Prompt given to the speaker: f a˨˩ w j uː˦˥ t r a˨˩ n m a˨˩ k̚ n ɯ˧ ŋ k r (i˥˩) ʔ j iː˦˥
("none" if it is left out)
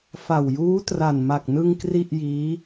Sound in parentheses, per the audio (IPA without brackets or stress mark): i˥˩